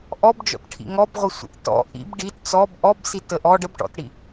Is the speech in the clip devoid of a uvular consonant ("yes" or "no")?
no